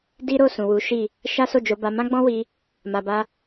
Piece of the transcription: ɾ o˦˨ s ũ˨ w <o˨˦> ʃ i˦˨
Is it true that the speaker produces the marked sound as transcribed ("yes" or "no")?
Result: no